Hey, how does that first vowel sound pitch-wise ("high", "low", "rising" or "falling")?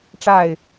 falling